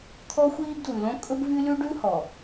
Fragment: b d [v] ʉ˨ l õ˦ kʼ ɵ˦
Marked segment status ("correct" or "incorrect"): incorrect